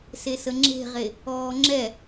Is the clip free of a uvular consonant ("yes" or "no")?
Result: no